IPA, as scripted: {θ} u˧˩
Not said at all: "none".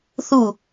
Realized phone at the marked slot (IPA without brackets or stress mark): θ